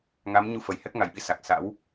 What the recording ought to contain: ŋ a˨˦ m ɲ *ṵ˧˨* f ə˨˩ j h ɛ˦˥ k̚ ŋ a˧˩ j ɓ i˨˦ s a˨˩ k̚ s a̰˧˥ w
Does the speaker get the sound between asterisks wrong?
yes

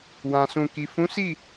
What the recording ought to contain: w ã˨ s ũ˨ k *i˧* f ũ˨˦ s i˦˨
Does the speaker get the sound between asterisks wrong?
yes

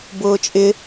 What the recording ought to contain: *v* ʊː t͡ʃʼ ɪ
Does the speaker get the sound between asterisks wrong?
yes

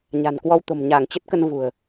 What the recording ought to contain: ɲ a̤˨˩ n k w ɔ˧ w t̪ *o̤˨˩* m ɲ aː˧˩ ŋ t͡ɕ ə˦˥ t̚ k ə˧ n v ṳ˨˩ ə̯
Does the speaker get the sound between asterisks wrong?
no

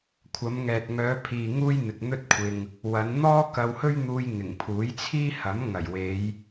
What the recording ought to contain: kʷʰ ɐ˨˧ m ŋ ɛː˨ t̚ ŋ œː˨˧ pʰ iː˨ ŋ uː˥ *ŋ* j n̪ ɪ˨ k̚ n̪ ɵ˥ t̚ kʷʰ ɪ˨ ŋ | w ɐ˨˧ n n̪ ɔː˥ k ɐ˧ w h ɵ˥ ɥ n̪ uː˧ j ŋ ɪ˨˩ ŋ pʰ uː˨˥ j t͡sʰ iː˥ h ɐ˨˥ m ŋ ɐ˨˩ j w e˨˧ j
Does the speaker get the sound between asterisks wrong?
yes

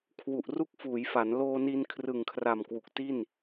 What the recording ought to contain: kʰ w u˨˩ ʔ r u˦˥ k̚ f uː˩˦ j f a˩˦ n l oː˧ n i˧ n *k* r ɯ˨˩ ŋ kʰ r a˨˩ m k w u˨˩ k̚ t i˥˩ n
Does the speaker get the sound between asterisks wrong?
yes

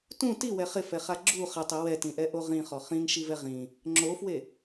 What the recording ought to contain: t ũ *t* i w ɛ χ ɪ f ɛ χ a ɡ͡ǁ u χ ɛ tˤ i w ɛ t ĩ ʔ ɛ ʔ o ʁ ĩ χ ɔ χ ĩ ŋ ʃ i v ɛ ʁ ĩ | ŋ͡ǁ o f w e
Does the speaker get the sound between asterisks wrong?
no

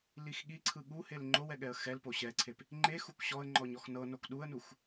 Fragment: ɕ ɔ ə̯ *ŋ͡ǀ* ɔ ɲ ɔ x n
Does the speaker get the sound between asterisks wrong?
yes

